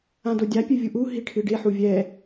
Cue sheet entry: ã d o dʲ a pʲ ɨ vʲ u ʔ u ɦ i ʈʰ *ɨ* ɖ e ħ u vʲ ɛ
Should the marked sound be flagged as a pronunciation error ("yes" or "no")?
no